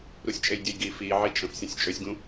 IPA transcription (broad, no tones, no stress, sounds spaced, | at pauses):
ɾ u sʲ t͡ʃʼ e j dʲ ø j ɡ i f iː ʕ i t͡ʃʼ ə̃ f sʲ ə̃ sʲ t͡ʃʼ ø sʲ ɡ ũ